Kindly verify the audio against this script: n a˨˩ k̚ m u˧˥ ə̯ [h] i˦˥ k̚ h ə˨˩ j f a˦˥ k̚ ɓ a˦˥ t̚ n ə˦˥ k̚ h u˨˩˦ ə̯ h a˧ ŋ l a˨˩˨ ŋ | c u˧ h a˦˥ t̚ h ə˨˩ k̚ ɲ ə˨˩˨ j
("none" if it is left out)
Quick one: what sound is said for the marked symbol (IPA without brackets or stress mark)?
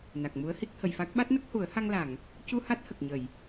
h